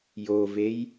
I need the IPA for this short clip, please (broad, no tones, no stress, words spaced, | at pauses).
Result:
jovej